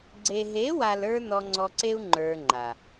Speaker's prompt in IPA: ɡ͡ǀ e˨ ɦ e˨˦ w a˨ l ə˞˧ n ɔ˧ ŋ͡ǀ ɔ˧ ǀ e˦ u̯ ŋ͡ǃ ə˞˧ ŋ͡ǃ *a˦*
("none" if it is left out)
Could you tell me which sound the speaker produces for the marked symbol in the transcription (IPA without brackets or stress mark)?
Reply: a˨